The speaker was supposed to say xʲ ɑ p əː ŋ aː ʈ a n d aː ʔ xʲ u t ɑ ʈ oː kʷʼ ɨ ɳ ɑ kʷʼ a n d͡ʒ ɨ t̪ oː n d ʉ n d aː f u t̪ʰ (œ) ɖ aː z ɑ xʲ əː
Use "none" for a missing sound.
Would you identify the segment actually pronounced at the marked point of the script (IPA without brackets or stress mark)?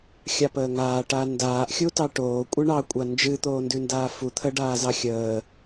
ə